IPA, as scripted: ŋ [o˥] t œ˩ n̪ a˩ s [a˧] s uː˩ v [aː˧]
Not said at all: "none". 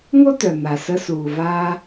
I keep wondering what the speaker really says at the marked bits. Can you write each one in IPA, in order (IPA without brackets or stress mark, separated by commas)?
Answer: o˥, ə˧, aː˧